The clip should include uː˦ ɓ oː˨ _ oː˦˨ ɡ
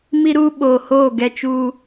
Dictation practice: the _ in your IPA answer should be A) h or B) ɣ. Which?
A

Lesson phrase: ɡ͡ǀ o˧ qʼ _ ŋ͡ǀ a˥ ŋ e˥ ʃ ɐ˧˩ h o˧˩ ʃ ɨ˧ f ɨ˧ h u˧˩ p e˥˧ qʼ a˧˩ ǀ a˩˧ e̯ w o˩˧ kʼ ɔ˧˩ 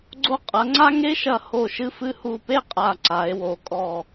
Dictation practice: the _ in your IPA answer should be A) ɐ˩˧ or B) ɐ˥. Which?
A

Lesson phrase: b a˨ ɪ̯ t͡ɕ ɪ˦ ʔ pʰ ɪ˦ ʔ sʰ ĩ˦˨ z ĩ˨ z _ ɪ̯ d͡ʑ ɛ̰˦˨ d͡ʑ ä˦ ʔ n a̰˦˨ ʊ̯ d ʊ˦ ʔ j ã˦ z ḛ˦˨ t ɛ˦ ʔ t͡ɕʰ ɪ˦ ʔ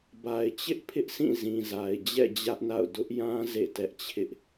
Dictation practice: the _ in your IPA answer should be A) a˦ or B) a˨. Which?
B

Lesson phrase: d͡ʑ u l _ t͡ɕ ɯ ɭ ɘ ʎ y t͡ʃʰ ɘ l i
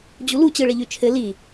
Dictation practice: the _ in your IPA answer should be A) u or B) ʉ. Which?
A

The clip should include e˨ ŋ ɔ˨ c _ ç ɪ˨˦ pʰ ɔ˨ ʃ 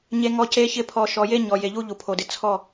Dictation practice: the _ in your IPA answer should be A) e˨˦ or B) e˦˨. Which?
A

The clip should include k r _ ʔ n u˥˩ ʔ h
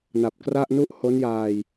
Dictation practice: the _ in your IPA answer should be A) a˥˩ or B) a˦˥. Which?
A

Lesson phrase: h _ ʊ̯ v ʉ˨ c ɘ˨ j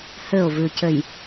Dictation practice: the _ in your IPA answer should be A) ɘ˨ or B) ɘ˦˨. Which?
B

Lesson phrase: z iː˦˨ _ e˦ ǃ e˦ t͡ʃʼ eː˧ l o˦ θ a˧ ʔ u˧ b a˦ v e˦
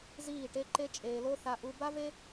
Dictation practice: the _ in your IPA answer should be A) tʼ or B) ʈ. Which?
B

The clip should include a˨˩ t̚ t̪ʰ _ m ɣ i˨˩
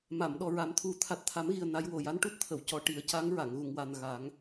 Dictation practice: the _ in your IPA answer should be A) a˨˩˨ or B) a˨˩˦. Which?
B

